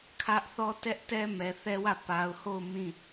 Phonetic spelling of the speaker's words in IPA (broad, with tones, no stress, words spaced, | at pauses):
kʰä˦ʔθɔ˦ tɛ˦ʔ tɛ˦mɛ˨θɛ˦wä˦˨ pa˨ʊ̯ho˦˨ʊ̯ mĩ˦˨